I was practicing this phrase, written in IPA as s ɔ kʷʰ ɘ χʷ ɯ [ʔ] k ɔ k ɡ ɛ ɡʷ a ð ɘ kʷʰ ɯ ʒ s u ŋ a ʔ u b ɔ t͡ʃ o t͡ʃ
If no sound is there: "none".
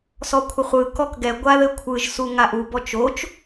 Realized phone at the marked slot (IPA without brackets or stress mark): none